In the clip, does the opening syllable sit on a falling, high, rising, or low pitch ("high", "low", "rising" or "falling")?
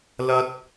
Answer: high